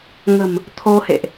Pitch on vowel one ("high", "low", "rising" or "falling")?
low